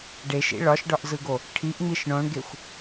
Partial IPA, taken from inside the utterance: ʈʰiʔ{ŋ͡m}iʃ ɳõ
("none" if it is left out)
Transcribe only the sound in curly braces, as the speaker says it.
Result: ŋ͡m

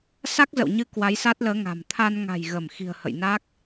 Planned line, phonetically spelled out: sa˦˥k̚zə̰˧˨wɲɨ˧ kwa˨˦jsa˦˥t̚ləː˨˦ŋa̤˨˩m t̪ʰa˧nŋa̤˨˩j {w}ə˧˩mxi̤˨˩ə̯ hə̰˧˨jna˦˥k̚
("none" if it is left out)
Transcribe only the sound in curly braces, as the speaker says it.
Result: ɣ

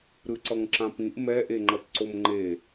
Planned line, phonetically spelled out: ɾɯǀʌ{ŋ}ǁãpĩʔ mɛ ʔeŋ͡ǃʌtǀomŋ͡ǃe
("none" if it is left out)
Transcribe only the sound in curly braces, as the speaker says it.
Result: ŋ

